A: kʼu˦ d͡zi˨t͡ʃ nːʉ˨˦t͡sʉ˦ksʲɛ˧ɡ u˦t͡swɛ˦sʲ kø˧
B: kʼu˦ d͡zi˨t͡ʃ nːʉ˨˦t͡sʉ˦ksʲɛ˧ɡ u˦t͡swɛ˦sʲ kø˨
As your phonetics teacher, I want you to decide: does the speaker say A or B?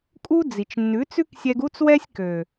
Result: B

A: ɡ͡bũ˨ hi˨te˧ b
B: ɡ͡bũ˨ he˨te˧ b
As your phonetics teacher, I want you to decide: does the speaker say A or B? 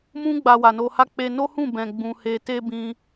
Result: B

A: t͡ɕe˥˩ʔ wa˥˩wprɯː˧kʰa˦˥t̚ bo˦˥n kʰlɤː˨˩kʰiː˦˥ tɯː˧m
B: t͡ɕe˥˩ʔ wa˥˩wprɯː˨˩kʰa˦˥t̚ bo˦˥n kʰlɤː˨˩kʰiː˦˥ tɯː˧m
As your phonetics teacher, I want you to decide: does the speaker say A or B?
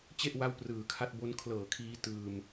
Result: B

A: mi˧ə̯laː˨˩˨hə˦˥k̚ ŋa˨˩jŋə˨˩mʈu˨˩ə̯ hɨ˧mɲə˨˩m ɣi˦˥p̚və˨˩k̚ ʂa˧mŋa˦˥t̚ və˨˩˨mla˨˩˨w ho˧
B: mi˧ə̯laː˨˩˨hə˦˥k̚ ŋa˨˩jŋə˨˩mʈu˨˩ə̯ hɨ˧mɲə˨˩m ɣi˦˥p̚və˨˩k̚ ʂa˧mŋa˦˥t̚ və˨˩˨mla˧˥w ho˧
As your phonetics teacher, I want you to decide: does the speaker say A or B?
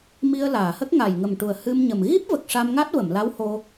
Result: B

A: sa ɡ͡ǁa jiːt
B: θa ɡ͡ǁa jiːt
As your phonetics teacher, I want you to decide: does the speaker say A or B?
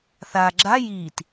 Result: B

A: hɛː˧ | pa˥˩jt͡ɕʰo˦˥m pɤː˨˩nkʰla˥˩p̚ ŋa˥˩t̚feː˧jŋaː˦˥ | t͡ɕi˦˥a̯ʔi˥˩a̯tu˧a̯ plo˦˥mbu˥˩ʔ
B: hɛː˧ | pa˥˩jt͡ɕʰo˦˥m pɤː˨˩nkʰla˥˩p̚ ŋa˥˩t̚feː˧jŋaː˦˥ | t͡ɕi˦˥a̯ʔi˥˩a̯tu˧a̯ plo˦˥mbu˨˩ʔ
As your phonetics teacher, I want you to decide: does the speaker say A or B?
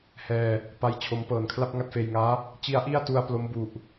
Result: B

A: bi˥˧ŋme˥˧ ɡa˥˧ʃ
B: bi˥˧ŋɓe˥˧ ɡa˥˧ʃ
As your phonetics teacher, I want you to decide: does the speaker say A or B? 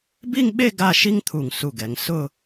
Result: B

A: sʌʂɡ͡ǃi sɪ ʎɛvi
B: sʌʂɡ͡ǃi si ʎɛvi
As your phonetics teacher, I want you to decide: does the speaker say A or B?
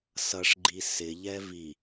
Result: A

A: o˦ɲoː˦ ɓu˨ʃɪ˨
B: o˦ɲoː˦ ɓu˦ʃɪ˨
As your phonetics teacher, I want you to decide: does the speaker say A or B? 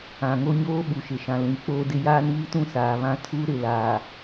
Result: A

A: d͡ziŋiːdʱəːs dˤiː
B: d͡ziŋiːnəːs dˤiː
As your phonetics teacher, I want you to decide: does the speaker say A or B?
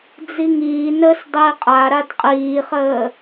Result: B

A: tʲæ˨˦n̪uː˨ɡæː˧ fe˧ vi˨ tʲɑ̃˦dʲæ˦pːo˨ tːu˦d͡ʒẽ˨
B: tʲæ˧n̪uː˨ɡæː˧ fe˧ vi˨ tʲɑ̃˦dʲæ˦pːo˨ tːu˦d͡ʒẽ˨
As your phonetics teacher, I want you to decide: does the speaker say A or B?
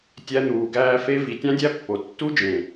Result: B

